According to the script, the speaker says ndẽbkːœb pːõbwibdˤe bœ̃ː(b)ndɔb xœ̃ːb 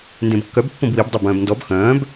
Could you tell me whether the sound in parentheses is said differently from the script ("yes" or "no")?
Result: no